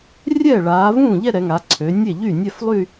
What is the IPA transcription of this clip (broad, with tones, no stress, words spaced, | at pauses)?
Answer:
rʲɛː˥˩ɭaː˩˧vũː˥˩ʎɛ˥˧ ɾɛ˩˧ŋa˩˧ǀʰø˩˧ nʲe˥˩ʎy˥˩nʲɛ˥˧flˠy˥˧